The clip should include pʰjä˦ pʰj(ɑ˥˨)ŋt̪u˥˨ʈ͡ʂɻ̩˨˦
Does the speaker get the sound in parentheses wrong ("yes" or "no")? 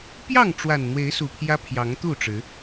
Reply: yes